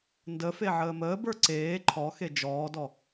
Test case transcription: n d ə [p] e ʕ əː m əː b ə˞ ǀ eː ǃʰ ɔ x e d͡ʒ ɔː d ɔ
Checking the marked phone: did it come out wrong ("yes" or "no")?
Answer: yes